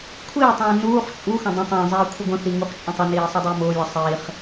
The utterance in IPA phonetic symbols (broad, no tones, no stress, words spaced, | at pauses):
kʷʰiːtˤũː nuːχ t͡ʃʼuxə̃ dˤə̃ tˤə̃ːzˤiː kʷʰəɡʷə̃θi ŋuχt͡ʃʼə̃tˤəniː sˤʊdˤʌːmʊːlʲʌ sˤiːχ